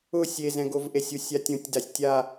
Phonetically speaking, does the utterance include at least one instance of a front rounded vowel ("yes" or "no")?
no